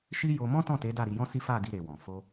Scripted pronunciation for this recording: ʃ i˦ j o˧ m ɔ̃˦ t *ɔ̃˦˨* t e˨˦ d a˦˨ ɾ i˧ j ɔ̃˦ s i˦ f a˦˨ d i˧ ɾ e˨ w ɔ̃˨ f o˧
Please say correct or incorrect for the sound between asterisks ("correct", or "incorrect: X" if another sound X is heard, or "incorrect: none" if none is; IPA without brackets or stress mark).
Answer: correct